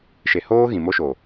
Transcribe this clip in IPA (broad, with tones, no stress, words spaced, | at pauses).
ʃe˨hoː˦ ɣĩ˨mo˦ʃo˨